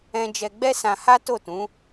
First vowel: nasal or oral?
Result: nasal